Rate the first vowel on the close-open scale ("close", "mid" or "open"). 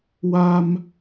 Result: open